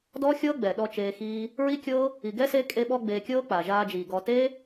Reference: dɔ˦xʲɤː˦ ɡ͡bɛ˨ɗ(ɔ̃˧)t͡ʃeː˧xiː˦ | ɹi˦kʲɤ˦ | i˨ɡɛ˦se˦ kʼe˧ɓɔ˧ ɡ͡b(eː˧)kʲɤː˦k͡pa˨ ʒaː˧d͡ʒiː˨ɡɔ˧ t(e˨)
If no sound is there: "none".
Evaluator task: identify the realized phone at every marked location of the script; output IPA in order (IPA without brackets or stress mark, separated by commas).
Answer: ɔ˧, eː˧, e˦